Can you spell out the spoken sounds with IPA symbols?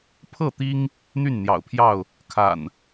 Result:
pʰ ɤ˥˨ t̪ i˦ ŋ | n̪ y˥˨ n n̪ j ɑ̰˨˩ ʊ̯ pʰ j ɑ˥˨ ʊ̯ | kʰ a̰˨˩ n

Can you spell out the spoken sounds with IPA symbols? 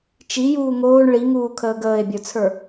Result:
t͡ʃ i j uː ŋ oː ɳ ɭ i ŋ uː kʰ əː ɡ əː e̯ bʲ ə˞ t͡sʰ ə˞

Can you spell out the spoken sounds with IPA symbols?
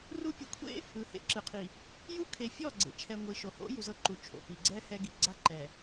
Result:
r u˦ pʲ o˨ kʷʰ ḛ˦ | ɯ˨˦ h ḛ˦ ǁ ɯ˨ qʰ i˨ | j u˦ kʰ e˨ fʲ ɔ˦˨ ɡ͡ǀ ḛ˨ t͡ʃʰ ɛ˨ ŋʷ i˨ ʃ o˨ h o̰˦ j u˨ z ɤ˦ ǃ u˨ t͡ʃʰ o̰˨ p i˨ ɡ͡ǀ ɛ˦ h ɛ˦ ɡ i˨ ɡ͡ǀ a˦ ǃ ɛ˨

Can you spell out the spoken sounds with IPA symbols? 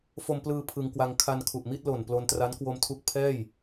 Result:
f o˧ m p l ɯː˧ pʰ ɯ˧ ŋ k w a˧ ŋ kʰ a˧ n kʰ u˨˩ ʔ m i˥˩ t̚ l o˨˩ n p l o˧ n t r a˦˥ n k w o˧ m tʰ u˦˥ k̚ pʰ ɛː˥˩ j

